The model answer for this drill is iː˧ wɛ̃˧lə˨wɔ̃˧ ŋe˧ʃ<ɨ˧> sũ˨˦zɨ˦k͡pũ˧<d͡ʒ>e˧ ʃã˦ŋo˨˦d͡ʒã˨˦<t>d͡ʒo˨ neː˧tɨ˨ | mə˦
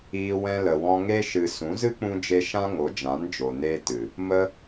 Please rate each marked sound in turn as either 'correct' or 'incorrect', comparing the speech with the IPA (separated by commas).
incorrect, correct, incorrect